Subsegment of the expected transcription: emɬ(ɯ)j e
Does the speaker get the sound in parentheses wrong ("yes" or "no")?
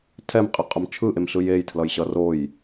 no